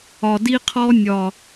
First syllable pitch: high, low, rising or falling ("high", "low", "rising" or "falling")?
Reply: low